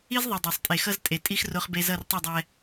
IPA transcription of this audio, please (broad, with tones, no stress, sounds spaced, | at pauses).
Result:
i˦ z ðˤ e˨ dˤ a˨ sˤ tʼ e˨ x ʌ˦ z tʼ e˨ tʼ i˦ x r o˦ χ b e˦ z ʌ˦˨ r tˤ i˦˨ dˤ ɛ˦